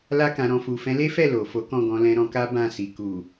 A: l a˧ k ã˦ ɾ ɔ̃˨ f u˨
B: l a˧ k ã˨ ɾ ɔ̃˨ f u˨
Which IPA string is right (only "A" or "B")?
B